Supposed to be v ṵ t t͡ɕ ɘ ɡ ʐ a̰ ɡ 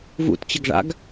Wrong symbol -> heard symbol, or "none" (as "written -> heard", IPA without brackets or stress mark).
none